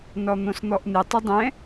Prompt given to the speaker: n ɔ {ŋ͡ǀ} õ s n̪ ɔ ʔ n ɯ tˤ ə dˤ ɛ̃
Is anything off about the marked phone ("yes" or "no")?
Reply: yes